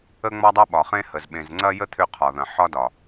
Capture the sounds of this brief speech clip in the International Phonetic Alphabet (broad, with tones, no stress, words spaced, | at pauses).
ə˦ŋ͡mɒ˦dˤɐ˦ ɓɒ˨χẽ˦hə˨z ɓẽ˨zŋ͡ǀɐ˦jə˦ t̪ʰʏ˦qʰɒ˨ðɐ̃˨ ħɒ˦dɒ˨